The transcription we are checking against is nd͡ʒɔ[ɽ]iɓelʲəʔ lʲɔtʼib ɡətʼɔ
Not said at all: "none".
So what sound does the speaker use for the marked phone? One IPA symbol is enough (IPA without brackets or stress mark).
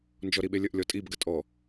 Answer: ɾ